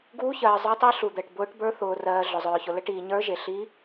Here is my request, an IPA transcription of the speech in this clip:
ɡuː˦˥çɜː˧ zˤə˞˦˥tˤi˦˥ɬu˧ d̪ɜ˧ʈbʊː˦˥ʈbə˞˦˥ θʊː˧rɜː˧ ɮʊ˧zˤœː˧çʊ˧lə˦˥ ʈiː˧ɲə˞˦˥ʒe˧ ɬi˦˥

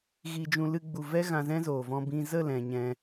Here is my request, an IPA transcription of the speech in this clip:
ɣi˧d͡ʒũ˧ lɨ˦ɡ͡bu˧ vɛ˦ ɣã˧zɛ̃˦zoː˨vɔ̃˧ bĩ˧ zə˦˨lɛ̃˨ ɲɛ̃˧

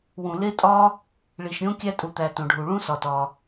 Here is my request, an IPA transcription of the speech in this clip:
wũ˩le˥tʼɒ˥ | ɭi˩ʃɾʲõ˥ kʲæ˥tʼu˩t̪æ˩ tõ˩ɖʱu˩ ɭũ˥sɒ˩tɒ˩

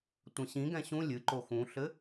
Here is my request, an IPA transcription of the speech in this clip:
tʷɐ̃ɕĩɡɛ̃ ɕũ lʲɨǃo xũɬɘ

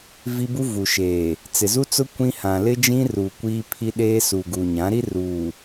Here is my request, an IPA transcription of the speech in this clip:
vi˦bu˦vu˨ʃeː˨ | t͡sɪ˨zu˦t͡sʊ˦ kʷĩ˦hã˨ lɪ˦d͡ʒĩ˦ruː˨ kʷiː˦ pʰi˦ɗeː˦ su˨ɡuː˨ɲã˨˦ɾi˦ ruː˨

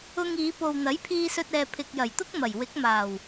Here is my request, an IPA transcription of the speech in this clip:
ʊ˧ŋiː˨˧ po˨wn̪ɐ˨˥j pʰiː˧sɵ˧t̚ ɛː˨pʰɪ˨k̚jɐ˨˩jt̪ʊ˥k̚ mɐ˨˩jwɪ˨˥k̚maː˨˩w

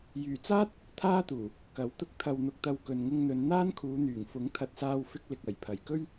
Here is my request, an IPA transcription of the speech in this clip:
jyː˨˩t͡saː˥t̚ | t̪ʰaː˥t̪uː˨˩ | kɐ˨˥wt̪ʊ˧k̚ t̪ʰɐ˨wn̪ʊ˨k̚t̪ɐ˨w kɵ˨n ŋʊ˧ŋn̪ɵ˨˧n n̪aː˥nkʰuː˨˧n̪yː˨˩ŋ fʊ˨˥ŋt̪ʰɐ˨t̚ saː˧wfɪ˧k̚ lɪ˨k̚ɐ˨˩j pʰɐ˨˩jkɵ˥ɥ

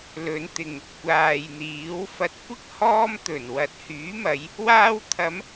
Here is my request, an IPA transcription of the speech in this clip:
lɵ˨˧nt̪ɪ˨ŋ | kʷaː˨jn̪iː˨˥w fɐ˨t̚kʷɪ˥k̚ hɔː˥m t̪ɵ˨˩nwɐ˨t̚hyː˨˥mɐ˨˧j | waː˧wt̪ʰɐ˨˧m

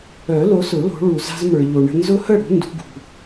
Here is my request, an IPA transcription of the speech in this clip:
œ˨˩˦lo˨˦sʊ˨˩˦ lo̤˨˦ɭu˨ za̤˦zmə˞˨ʎo˨ɳə̤˦ nzʊ˦hə˥˨ɽṳ˨˦ ndṳ˨˦ɡṳ˨

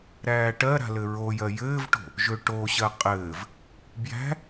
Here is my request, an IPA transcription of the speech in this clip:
ɾæːʈɜɾa̤ lɘɹojɜ jɘːvʈo̤ | ʒøʈoɕɜ qʼɘːv | bjæ̤

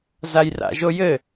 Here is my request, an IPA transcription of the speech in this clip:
zajra̰ʒojɘ

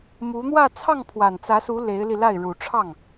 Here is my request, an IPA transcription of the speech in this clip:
mu˧˥n̪wä˥˧ t͡sʰɑ˥˩ŋpʰwa˨˩nt͡sä˧˥su˧˥ le˧˥ɪ̯li˧la˥˩ɪ̯ ɻu˨˩ʈ͡ʂʰɑ˥˩ŋ

